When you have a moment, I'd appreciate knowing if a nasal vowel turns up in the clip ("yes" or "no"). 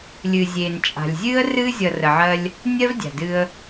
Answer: no